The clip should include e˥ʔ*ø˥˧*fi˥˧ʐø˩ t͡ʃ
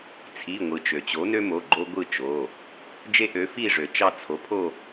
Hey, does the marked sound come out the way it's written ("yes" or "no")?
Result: no